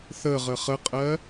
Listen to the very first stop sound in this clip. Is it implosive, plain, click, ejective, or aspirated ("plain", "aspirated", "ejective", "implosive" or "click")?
ejective